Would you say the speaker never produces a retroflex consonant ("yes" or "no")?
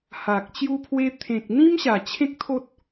yes